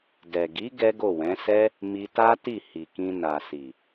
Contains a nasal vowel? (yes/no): yes